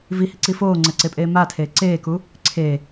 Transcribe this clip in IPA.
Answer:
vihiǀi foːŋ͡ǀɛǀepʼeː matʰeː ǀeːku | ǀʰe

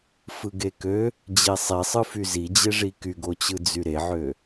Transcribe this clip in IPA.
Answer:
fɯɡekø | d͡ʑesˤisˤɯfy zid͡ʑeʐi kyɡot͡ɕɯ d͡zyɾeʕø

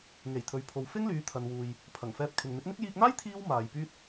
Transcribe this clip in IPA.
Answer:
ŋe˨˩jt̪ʰɵ˨ɥpʰo˨w fɪ˥ŋlyː˨˧t̪ʰɐ˨nwuː˨j | pʰɐ˨˩ŋfɛː˧p̚kʰɪ˨ŋ n̪ɪ˨˥k̚n̪ɪ˥k̚ jiː˧k̚n̪aː˥j t̪ʰiː˥wmaː˨jpyː˥t̚

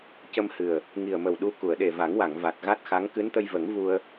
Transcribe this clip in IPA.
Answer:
cə˧mhɨ˨˩ə̯ | ŋi˨˩ə̯mə˨˩wɗu˧ ku˨˩˨ə̯ɗe˨˩va˨˩˦ŋwa˨˩˨ŋ va˨˩t̚ɣa˦˥t̚xa˧˥ŋ kɨ˧˥nt̪ə˧jvə˨˩˦ŋ vu˧ə̯

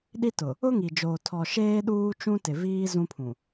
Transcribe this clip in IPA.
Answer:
ɗi˦tʊ˨ | ʊ˦ŋi˨d͡ʒoː˨ tʰɔ˨ʃeː˦ ɗuː˦t͡ʃũ˦ tɪ˨ viː˦ zũ˦pʰũ˨

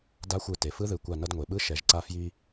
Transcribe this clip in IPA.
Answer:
da˧˥xʷɯ˧˩ te˩fɯ˧˥ðɯ˩˧kʷa˧˩ nʌ˧dŋʷe˩ɓɯ˧˥ ʃɛ˩˧ʒǀa˧fji˧

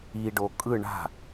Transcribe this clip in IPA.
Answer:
iɖo kʼɯ ɳa̤

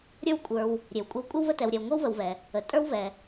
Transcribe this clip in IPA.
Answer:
ɾʲə˞˦wkʷʼə˞˨w | ɾʲe˩wkʷʼə˦w kʷʼə˥wvə˦tɛ˨w ɾʲɛ˨wŋʷe˥wvə˨wvɛ˩ | ə˩ tʼə˞˥wvɛ˩

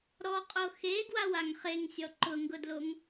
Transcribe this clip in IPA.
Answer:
ɾɔqʼo xe ɡwawaŋχeŋ sʲɔǃʊŋɡʊdloŋ

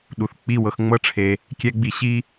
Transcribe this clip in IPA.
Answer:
ɗu˨θ k͡pi˦˨wɤ˧x ŋ͡mɤ˦ʈ͡ʂʰe˧ | kʲɛ˧ɡ͡bi˧ɕi˦

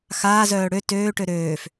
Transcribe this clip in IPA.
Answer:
xaːzœː ɽø tøːʈø ɾøːf

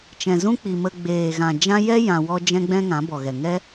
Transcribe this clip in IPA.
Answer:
t͡ʃɛ̃˨zũ˦k͡pi˨mə˧ ɡ͡beː˨ɣã˨ d͡ʒã˦ jɛ˦ jã˧wɔ˦ d͡ʒɛ̃˦ɡ͡bɛ̃˦ŋã˨˦ bɔ˨ɣɛ˨ ŋɛ˦

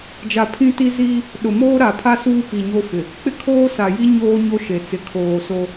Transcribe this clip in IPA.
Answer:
d͡ʒa˨pʰĩ˦ ti˦ziː˦ | ɗʊ˨moː˦ɾa˨pʰa˦ suː˦pi˨ɲo˦fɪ˨ | k͡pɪ˦kʰoː˦sa˨ji˦ ɲoː˦ ɲo˦ʃe˨ t͡sɪ˨kʰoː˨ so˦

